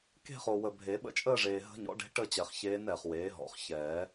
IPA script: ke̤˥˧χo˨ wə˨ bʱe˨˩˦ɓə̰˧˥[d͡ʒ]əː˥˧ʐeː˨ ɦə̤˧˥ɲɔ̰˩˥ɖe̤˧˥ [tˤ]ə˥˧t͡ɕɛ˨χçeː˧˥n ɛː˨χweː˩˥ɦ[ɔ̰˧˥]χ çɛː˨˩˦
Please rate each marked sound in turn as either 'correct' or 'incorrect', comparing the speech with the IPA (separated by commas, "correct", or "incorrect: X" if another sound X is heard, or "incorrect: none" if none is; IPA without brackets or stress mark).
incorrect: t͡ʃʼ, incorrect: ʈ, incorrect: ɔ̰˨˩˦